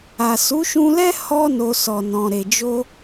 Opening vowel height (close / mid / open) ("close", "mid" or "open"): open